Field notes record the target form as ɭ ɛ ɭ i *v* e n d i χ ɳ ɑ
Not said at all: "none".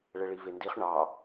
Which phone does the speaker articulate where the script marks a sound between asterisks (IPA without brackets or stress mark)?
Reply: v